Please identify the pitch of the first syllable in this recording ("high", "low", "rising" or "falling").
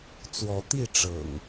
rising